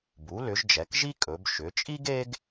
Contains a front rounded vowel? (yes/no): yes